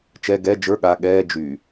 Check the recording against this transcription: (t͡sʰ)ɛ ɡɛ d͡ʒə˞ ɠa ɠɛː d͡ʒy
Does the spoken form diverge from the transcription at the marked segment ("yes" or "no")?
yes